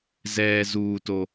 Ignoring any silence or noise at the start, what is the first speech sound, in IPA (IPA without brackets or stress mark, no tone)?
z